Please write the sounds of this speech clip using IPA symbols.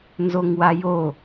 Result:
nzoŋwajo

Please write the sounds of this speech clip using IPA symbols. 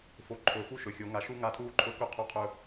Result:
fo˨ ǃʰɵː˨fu˦ ʃɵ˨xʲo˨˦ŋa˧ ʃu˦ŋa˦˨tʰuː˦ǃʰɵ˦ kɵ˦ qʰu˧qʰɵ˦

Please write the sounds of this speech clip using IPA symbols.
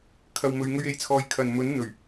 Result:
kʰɐ˨wmɵ˨ɥ ŋɵ˧ɥe˨˥jt͡sʰɔː˨˧j kʰɐ˨nmɵ˨˥n n̪ɵ˨˩ɥ

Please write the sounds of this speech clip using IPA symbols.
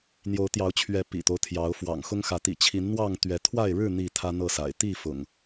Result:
n̪jo˨˦ʊ̯t̪jɑ˨˦ʊ̯t͡ɕʰɥɛ˨˦ pḭ˨˩t̪o˦ʊ̯t̪ʰjɑ˨˦ʊ̯ fwɑ̰˨˩ŋxʊ˦ŋxä˨˦ t̪ḭ˨˩t͡ɕʰi˨˦nn̪wɑ˥˨ŋ t̪ɥɛ˨˦t̪ʰwa˥˨ɪ̯ ɻɻ̩˥˨ n̪i˥˨t̪ʰä˦n̪ɤ˥˨sa̰˨˩ɪ̯ t̪i˥˨fʊ̰˨˩ŋ

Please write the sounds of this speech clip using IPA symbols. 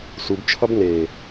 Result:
subt͡ʃʰʌb ne

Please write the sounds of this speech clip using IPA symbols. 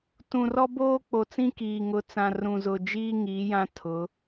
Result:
tũ˨rɔ˦boː˦ k͡po˨t͡sĩ˦kiː˨ ŋʊ˨˦t͡sã˨rũ˨ zʊ˨d͡ʒiː˦ ŋiː˨˦jã˦ tʰʊ˨˦

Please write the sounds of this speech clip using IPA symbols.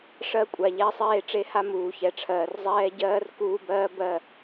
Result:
ʂɜ˦kʷʼa˨ ʎɛː˦sˤeː˦ ʈ͡ʂe˦ha˦ muː˨çɛ˨ʈ͡ʂʰɜː˨r zˤɛː˦ ɟɜː˦r kuː˦bɜː˦ bɜ˦˨

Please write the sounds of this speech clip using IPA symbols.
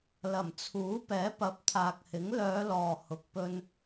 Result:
lɐ˨˩mt͡sʰuː˨˥ pɛː˨˥pɐ˨˥p̚t̪ʰaː˨k̚hɪ˨˥ŋ lœː˨˧ lɔː˨ hʊ˨k̚pɵ˧n

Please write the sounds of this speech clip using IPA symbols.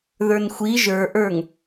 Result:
ðə˞nxʷi ʒə˞ʔə˞ŋ

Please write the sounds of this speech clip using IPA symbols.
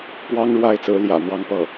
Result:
pwɑ˥ŋɻwa˥˩ɪ̯t͡sɹ̩˧˥ljä̰˨˩ n̪wɑ˥˧ŋpɤ˥˩

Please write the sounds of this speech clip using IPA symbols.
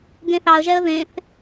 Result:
ɡẽθɑə̯ʒɛə̯ ðẽθ

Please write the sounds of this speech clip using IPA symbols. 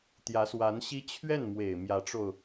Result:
t̪jä˧˥swa˧˥nɕi˥ t͡ɕʰɥɛ˥˩nmwe˨˩ɪ̯ mjä˧˥ʈ͡ʂo˧ʊ̯

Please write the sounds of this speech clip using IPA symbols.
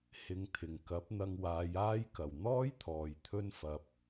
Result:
hɪ˨˧ŋ t̪ʰɪ˨˩ŋ kɐ˨˥p̚n̪ɐ˧ŋ waː˨˧jaː˥j kɐ˨˩wn̪ɔː˥jt̪ʰɔː˨j t̪ʰɵ˥nfɐ˧p̚

